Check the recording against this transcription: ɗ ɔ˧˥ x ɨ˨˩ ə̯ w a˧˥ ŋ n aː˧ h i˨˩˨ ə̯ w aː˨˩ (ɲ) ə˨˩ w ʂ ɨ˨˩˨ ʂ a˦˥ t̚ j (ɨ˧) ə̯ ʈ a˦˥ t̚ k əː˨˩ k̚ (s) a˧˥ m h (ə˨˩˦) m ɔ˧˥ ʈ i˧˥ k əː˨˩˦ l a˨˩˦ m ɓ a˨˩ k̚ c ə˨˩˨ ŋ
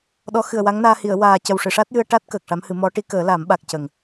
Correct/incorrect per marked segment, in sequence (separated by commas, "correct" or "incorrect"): incorrect, correct, incorrect, incorrect